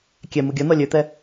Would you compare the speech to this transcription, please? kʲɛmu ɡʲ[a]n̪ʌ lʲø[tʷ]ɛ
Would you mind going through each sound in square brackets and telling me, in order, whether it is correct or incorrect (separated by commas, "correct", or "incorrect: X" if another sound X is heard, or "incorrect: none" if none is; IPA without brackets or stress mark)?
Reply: incorrect: ɐ, incorrect: t̪